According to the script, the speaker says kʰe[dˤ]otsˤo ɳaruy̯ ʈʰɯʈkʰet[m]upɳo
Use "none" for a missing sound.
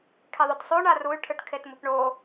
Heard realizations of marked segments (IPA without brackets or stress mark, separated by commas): ðˤ, m